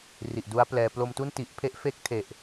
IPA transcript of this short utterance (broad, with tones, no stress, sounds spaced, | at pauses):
r i˨˩ ʔ d u˦˥ a̯ p l ɛː˧ p l o˧ m t u˥˩ n t i˨˩ ʔ pʰ e˦˥ ʔ f e˦˥ k̚ tʰ e˨˩ ʔ